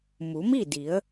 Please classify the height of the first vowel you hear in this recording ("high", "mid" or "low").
high